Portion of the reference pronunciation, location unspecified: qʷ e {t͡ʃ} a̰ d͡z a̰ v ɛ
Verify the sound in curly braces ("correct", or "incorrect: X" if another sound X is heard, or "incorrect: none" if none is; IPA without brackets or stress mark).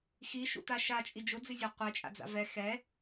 incorrect: t͡ʃʼ